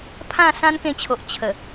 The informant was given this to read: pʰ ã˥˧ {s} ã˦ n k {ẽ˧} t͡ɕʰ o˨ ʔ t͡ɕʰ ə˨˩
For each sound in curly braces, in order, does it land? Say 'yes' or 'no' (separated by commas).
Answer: yes, yes